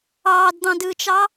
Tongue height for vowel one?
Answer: low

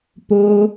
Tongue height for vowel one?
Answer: mid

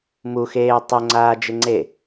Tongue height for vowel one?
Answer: high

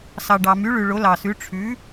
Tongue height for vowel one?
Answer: low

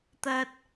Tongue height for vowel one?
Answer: low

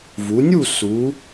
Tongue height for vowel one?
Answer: high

